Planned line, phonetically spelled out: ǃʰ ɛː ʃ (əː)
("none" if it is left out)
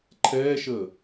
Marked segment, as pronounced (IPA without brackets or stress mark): əː